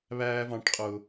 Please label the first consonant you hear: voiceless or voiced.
voiced